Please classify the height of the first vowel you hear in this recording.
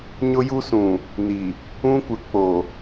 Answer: high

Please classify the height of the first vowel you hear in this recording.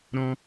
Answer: mid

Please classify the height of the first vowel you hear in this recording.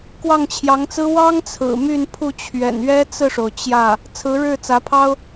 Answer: low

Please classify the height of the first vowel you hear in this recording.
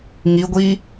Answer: high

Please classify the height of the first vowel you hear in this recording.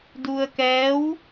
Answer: high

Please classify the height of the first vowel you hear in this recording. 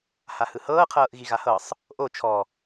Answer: low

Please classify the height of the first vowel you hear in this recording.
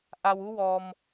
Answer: low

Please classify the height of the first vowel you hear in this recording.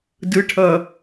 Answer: high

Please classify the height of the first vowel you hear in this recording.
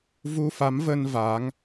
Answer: high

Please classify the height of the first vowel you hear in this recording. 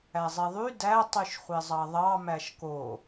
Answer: low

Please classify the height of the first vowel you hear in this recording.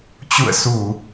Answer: high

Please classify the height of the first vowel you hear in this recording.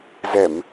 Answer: mid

